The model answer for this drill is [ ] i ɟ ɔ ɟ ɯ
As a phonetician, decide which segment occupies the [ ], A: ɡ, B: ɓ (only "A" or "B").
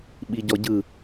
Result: B